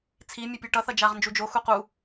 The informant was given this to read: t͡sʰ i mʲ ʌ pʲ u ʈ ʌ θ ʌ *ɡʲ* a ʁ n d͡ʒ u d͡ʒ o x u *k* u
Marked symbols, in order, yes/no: no, no

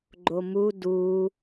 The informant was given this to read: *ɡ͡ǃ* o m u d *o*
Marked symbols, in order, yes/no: yes, no

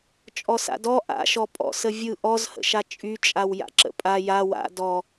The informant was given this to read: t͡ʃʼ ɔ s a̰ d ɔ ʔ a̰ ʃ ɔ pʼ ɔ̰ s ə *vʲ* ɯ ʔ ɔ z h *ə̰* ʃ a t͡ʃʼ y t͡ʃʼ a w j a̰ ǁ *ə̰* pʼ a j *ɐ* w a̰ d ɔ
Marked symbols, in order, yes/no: yes, yes, yes, no

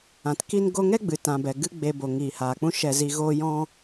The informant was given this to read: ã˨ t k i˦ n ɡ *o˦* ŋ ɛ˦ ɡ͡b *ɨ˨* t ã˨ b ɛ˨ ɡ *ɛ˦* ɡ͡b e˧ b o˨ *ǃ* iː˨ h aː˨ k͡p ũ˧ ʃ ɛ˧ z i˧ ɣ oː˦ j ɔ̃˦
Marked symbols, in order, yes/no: yes, yes, no, no

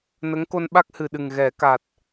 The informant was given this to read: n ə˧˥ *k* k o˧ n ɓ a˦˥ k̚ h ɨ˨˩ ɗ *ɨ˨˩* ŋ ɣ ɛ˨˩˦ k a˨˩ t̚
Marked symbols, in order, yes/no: no, yes

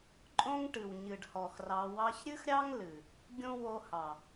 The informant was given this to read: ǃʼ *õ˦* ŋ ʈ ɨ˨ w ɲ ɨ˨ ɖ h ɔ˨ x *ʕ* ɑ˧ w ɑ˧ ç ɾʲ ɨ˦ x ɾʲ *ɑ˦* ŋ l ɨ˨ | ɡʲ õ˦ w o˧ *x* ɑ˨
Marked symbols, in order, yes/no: yes, no, yes, no

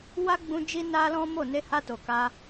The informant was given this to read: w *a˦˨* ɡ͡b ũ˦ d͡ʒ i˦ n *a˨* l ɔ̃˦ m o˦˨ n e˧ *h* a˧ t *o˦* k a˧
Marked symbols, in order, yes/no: no, no, yes, no

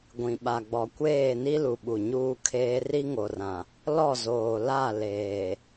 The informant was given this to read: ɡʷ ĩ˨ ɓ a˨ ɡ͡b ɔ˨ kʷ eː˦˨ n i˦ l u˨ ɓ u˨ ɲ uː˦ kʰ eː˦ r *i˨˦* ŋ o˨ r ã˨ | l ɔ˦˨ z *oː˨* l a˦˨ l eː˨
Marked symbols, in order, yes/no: no, yes

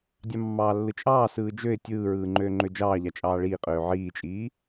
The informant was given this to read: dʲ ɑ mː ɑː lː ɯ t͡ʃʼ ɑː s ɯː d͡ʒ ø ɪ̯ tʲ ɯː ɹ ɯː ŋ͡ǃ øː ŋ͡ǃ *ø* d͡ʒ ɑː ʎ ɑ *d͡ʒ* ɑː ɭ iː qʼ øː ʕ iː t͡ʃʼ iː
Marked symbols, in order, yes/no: yes, no

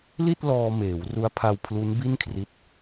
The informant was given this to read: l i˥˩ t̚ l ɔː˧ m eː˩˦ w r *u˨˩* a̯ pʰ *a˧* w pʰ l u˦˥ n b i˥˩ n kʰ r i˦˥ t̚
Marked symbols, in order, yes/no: no, yes

